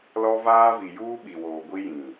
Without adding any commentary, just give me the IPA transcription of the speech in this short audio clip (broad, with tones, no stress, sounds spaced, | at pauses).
l ɔ˦ v aː˦ v i˨ j uː˦ ɓ i˨ w oː˨ ɡʷ i˦ j ĩ˨